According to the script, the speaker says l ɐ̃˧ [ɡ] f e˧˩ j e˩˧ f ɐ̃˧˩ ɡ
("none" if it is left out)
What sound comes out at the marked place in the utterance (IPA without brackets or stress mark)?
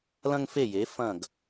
ŋ